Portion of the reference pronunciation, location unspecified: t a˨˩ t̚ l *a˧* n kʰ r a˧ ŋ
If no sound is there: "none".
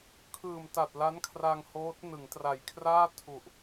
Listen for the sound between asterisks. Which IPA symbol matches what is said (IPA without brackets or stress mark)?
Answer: a˦˥